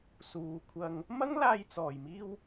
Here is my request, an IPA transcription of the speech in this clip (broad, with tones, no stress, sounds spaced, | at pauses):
s uː˨˧ kʷʰ ɐ˧ ŋ | m ɐ˥ ŋ l aː˧ j t͡s ɔː˨˩ j m iː˧ w